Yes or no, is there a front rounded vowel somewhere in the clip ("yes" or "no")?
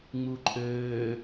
yes